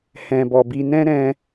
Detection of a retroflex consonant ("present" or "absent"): absent